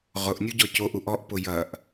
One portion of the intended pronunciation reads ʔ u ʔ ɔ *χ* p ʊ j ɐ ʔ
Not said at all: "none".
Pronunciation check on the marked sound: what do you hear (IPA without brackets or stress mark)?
ʔ